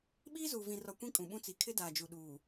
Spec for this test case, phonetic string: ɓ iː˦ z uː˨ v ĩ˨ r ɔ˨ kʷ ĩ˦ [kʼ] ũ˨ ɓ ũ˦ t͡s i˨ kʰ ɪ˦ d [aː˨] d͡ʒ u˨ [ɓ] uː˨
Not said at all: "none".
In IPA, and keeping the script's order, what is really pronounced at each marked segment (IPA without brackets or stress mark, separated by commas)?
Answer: kʼ, aː˨, ɗ